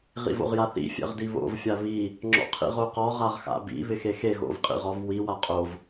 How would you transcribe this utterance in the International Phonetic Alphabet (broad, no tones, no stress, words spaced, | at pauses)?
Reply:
ʁḭvo̰ʁjaθḭ fʲɛ̰ʁdiβo̰v fʲaβi | ŋ͡ǁɔ̰qʰḭʁoqɔ ʁaʁxa̰bḭ βɪxexe ɣo̰vqʼḭʁɔv wi waqʼov